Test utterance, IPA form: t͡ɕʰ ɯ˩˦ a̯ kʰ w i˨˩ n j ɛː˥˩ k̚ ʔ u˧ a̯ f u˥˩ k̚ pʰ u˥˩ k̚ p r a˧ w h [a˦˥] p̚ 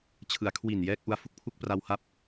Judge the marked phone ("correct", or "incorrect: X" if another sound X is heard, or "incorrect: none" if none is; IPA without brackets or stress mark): correct